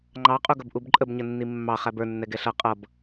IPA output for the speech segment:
ŋ͡ǃ ɑ qʼ u ɡ ʌ b ʔ u b ǃʼ ə b ɲ ə nː i mː ɑ χ æ b ə˞ nː ɛ ɡ ɛ ɬ ʌ qʼ ʌ b

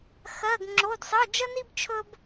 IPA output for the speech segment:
x ɜ˧˥˧ ɡ ŋ͡ǁ o˧˥˧ d sˤ ə˧˥˧ d͡ʒ ə˥ n i˥ b t͡ʃʰ ɵ˥ b

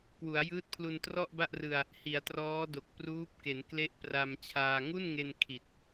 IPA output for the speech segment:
k w u˩˦ a̯ j ɯː˦˥ t̚ pʰ l u˧ n t r ɔ˥˩ ʔ b a˥˩ ʔ r ɯ˧ a̯ | h i˩˦ a̯ t r ɔː˦˥ d o˨˩ k̚ p r uː˦˥ p̚ k e˩˦ n k l e˦˥ ʔ p r a˧ m t͡ɕʰ aː˧ ŋ u˥˩ n ŋ e˧ n kʰ i˨˩ t̚

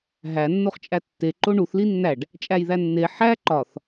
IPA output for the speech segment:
ɦ æ nː o χ t͡ʃʼ æ tː e ǃ o ɳ u θ l i nː æ ɖ | t͡ʃʼ æ j ð æ nː e ħ æ ǃ ɒ θ

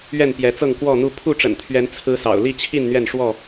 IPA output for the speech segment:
ɥ ɛ˥˨ n p j ɛ˨˦ t͡s ɤ˥˨ ŋ k w ɔ˥˨ n̪ u˥˨ pʰ u˥˨ ʈ͡ʂ ə̰˨˩ n t̪ʰ ɥ ɛ˨˦ n t͡sʰ ɹ̩˦ s ɑ̰˨˩ ʊ̯ l i˥˨ t͡ɕʰ i˥˨ n n̪ ɥ ɛ˥˨ n ʂ w ɔ˥˨

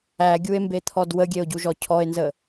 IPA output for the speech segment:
æ ɡʲ u e̯ m b e t̪ʰ ɔ d w ə ɡʲ e o̯ ɟ u ʒ ɔ cʰ ɔ e̯ n z ə

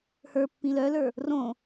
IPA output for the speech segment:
h ə˞ pː ĩ l œ l ə˞ | r õ

